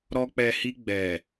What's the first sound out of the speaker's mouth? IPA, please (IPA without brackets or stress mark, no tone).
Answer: ɾ